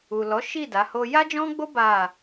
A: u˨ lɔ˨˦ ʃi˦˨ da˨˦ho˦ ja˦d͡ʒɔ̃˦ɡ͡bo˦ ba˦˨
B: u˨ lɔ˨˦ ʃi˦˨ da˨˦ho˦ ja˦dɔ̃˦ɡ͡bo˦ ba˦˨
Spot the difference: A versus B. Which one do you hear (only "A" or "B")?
A